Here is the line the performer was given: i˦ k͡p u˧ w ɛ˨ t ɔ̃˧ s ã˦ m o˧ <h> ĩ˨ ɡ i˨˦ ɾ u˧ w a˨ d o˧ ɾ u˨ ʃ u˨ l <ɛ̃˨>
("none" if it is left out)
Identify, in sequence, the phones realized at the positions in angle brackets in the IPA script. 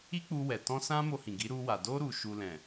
h, ɛ̃˨

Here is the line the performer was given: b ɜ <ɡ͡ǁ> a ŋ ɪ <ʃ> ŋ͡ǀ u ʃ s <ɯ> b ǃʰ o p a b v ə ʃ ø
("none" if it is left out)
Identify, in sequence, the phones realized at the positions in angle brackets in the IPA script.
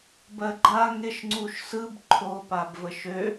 ɡ͡ǃ, ʃ, ɯ

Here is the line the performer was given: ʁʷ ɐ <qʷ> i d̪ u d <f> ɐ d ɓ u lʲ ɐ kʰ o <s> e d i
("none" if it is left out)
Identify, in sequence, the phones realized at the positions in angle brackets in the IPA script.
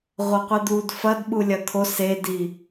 qʷ, f, s

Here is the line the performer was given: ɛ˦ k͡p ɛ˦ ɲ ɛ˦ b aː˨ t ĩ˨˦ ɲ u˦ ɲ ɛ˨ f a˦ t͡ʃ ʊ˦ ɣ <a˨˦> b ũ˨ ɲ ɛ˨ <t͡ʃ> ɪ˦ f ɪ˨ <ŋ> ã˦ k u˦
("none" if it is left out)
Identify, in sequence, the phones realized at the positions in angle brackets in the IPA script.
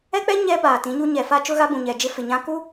a˦, d͡ʒ, ɲ

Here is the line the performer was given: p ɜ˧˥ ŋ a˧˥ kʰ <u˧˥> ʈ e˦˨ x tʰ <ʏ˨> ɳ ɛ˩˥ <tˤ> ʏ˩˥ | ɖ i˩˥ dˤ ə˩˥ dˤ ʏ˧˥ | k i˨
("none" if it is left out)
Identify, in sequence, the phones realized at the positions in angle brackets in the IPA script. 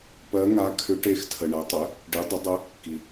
ʏ˧˥, ə˨, tˤ

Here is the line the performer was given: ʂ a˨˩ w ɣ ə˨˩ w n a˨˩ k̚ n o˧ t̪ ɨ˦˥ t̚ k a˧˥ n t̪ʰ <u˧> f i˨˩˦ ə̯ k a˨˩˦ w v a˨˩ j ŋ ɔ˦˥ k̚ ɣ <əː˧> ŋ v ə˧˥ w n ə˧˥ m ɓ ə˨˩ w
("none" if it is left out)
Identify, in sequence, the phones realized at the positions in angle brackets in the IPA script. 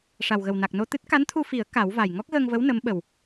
u˧, əː˧

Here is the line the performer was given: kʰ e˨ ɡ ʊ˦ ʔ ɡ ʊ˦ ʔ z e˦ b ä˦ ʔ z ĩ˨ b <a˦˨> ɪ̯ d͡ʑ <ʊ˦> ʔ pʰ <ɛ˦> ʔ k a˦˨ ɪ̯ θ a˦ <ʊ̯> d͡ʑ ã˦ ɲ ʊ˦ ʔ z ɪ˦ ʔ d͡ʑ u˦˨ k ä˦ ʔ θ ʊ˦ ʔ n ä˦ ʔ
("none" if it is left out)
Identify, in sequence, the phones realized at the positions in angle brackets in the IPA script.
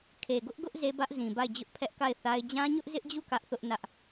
a˦˨, ʊ˦, ɛ˦, ɪ̯

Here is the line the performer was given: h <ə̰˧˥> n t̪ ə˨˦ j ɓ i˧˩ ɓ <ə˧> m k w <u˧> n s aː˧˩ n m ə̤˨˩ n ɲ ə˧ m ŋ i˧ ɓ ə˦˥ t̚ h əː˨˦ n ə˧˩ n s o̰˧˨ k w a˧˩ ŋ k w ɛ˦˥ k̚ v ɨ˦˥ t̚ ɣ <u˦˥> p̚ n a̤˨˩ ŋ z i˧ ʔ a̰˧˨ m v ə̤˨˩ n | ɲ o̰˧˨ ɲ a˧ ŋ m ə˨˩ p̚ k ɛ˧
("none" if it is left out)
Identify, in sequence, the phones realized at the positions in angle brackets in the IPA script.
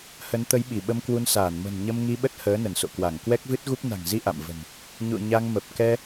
ə˨˦, ə˧, u˧, u˦˥

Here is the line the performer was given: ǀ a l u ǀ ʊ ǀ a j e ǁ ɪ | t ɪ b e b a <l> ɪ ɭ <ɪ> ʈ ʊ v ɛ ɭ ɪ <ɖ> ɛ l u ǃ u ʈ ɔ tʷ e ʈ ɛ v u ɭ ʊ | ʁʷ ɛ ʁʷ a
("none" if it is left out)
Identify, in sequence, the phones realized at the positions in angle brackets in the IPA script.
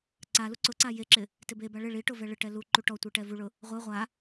ɭ, i, ʈ

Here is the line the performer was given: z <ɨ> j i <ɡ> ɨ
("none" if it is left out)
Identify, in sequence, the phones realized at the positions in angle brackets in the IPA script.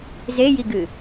e, ɡ

